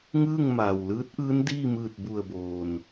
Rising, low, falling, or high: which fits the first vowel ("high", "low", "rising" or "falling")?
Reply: falling